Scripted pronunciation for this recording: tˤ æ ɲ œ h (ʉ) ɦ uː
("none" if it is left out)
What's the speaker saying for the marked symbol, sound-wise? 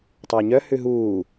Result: ʉ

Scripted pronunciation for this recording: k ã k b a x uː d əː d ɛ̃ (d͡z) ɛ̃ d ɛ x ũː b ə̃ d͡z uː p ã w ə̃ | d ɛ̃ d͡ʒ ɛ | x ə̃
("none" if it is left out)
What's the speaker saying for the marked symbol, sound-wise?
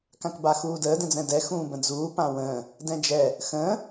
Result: d͡z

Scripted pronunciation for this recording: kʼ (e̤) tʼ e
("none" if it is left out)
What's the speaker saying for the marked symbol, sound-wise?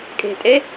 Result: e̤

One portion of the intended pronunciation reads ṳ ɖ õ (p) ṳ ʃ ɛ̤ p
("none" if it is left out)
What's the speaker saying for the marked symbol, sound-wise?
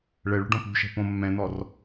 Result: p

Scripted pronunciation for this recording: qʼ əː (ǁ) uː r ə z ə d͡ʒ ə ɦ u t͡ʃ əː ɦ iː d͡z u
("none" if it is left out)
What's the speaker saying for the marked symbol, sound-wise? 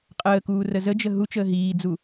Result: k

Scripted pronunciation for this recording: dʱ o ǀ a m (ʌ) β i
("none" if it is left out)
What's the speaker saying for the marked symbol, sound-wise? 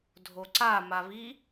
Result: a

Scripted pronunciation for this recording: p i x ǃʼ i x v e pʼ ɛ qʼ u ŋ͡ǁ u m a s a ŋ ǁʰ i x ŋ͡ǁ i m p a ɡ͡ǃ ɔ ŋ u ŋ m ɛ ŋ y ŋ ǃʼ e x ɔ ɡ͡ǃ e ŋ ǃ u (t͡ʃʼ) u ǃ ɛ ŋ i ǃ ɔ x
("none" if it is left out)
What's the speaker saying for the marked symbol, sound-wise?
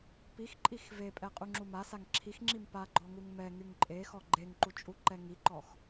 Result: t͡ʃʼ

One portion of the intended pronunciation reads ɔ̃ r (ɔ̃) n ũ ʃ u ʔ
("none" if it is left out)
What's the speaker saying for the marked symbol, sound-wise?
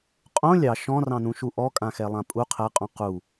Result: ɑ̃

